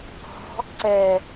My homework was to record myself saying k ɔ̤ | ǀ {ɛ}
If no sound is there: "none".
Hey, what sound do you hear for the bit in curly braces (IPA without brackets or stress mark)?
ɛ